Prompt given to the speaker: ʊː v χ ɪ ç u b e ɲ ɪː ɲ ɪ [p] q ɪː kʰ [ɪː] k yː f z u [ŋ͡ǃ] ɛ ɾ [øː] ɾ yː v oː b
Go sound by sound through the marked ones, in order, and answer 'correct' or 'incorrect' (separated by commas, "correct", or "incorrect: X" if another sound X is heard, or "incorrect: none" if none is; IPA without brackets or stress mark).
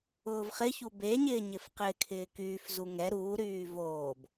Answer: incorrect: f, correct, incorrect: ŋ, incorrect: uː